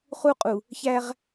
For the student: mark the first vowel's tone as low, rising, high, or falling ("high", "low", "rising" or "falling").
high